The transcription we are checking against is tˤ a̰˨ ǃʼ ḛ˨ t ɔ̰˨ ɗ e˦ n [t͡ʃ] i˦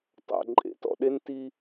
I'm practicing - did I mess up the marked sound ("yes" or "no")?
yes